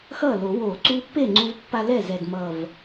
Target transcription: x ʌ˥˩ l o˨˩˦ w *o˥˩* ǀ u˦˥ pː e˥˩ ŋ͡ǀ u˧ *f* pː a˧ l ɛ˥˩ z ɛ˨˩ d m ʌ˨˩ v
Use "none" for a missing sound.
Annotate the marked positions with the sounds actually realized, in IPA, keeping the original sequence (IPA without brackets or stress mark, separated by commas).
o˨˩˦, v